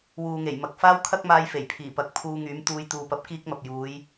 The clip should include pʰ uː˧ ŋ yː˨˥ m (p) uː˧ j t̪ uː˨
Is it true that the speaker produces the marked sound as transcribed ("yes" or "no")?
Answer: no